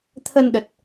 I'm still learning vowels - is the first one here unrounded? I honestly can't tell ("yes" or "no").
yes